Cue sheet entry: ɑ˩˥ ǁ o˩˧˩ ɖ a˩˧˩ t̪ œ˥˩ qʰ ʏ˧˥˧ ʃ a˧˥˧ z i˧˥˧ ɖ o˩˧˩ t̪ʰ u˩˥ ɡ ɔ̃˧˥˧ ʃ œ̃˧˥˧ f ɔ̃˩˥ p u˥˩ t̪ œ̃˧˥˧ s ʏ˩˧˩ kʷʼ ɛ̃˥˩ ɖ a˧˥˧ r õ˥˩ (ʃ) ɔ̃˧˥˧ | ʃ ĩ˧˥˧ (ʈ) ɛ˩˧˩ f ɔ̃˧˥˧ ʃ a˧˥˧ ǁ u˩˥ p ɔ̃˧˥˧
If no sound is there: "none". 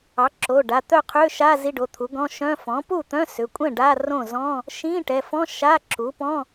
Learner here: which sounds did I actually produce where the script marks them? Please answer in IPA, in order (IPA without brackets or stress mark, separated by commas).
z, ʈ